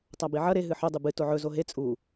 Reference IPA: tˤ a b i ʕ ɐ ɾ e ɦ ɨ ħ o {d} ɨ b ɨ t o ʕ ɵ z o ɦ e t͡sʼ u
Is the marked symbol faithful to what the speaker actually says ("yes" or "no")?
no